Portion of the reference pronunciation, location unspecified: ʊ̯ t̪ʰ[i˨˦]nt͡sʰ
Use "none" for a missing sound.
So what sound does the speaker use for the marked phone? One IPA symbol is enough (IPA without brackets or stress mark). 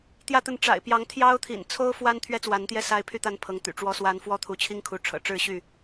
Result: ḭ˨˩